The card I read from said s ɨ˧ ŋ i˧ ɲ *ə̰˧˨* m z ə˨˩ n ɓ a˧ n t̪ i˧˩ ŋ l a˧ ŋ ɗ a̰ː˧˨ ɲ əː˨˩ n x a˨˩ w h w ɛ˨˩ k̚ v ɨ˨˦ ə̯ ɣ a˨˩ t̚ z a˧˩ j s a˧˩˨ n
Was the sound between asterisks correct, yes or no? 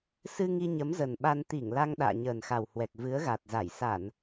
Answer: no